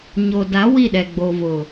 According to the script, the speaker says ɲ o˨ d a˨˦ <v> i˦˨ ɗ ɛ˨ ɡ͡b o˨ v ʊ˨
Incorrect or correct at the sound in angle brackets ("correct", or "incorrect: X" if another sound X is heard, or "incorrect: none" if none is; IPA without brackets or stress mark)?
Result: incorrect: w